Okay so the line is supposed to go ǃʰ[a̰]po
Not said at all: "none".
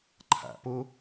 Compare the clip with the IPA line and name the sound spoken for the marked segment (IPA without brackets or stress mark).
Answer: a̰